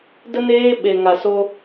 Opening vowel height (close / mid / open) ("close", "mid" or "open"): mid